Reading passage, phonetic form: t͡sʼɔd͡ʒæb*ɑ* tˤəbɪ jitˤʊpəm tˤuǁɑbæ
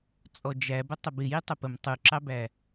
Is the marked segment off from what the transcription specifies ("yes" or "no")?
yes